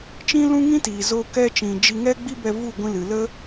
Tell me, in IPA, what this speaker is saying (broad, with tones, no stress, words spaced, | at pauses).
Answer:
t͡ʃĩ˦ lũ˦ŋĩ˦tiː˨zoː˧ kɛ˧ t͡ʃĩ˨d͡ʒi˧ ŋɛ˦ɡ͡bi˦bɛ˧ vu˦˨ɡʷĩ˧ lɨ˨lə˦